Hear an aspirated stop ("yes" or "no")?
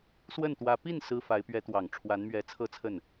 yes